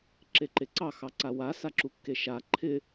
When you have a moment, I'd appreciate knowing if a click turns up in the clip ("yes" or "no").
yes